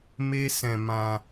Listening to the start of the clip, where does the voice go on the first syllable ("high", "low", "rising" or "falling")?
high